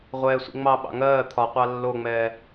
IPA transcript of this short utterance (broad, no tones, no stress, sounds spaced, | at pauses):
ʁʷ ɛː sʷ ḭ ŋ͡m ɑ ɓ ɑ̰ ŋ ɜː t̪ʰ ɒ qʷ ɑ lː o ŋ͡m ɛː